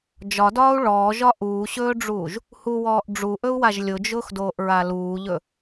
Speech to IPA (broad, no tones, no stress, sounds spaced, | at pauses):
d͡ʒ ɒ d ɒː u̯ ɭ ɔː ʒ ɒ ʔ uː ɕ ɵː ɖ͡ʐ uː ʒ | h u w ɔː ʔ ɖ͡ʐ u ʔ ɵ u̯ w a ʒ lʲ ʊ d͡ʒ ʊː x d oː ʔ ɹ a l uː ʎ ɵ